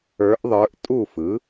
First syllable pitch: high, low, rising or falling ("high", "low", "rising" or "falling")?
rising